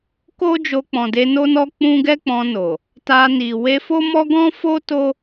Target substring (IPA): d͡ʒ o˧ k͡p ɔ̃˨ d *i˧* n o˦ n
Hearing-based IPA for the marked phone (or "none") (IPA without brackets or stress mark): e˧